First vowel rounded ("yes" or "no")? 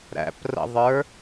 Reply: no